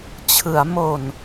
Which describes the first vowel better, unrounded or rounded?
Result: unrounded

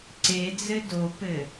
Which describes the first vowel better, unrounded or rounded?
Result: unrounded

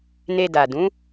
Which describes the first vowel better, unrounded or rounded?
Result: unrounded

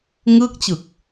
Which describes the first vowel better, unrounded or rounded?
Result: unrounded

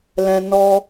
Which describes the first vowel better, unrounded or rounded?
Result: unrounded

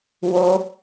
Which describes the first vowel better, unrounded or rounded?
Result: rounded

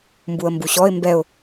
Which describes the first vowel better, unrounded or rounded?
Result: rounded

